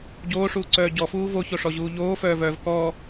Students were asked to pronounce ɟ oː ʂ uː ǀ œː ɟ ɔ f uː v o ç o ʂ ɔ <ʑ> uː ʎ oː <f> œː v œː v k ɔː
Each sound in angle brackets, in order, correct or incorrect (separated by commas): correct, correct